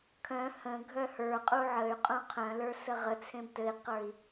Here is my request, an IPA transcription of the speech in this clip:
kʰ œ̃ h ə̃ ɡʱ œ h ə˞ qʼ u ʕ ə y̯ qʼ ũ qʰ œ̃ l ə˞ s ə ʁ ə t͡sʰ ẽ b t ɘ i̯ q ə˞ i̯

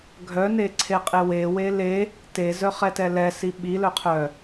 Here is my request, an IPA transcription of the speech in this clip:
ɡʱ œ n e ǀʰ e qʼ e w e w e l e | t e z œ χ ɛ t ɛ l ɛ s i ɓ i l œ qʰ œ

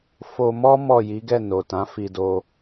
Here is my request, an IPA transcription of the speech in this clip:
f o˧ m ɔ˦ m ɔ˦˨ j i˨˦ ɡ ɛ˦˨ n o˨ t ã˨˦ f i˧ d o˧

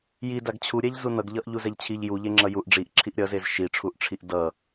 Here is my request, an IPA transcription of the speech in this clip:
j i d a ɡ t͡ɕʰ u ɾʲ ɛ ʎ z u n ʌ ɡ ʎ ʌ ʔ ʎ u z ɛ ʎ t͡ɕʰ i ʎ j u ʎ e ŋ͡ǁ ʌ j u ʔ ɖ͡ʐ i ʔ ǁʰ i ʔ ɾʲ ʌ z e z ʃ i ʈ͡ʂʰ u ʔ ʈ͡ʂʰ i ʔ d ʌ

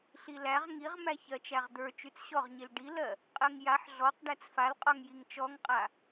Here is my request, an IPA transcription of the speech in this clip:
ɬ i l æ ʁ ŋ i ʁ m æ ç ɜ t͡ʃ æ ʁ d̪ ə˞ t͡ʃ y t͡s ɕ ɔ ʁ ɲ i l ɖ i l ɜ | qʼ ɜ ŋ j a ħ ɮ ɔ q ɖ æ t͡s f a l qʼ ɔ ŋ j i ŋ t͡ʃ ɔ ŋ qʼ a

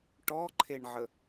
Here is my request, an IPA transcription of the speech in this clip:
ʈ ɔ ǃʰ e ɳ ʕ ə

